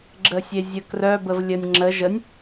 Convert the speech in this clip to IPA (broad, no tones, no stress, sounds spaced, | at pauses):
ɡ͡ǁ ə sʲ e zʲ ə k r œ b ə v lʲ ə nʲ ŋ͡ǁ ə ʒ ə nʲ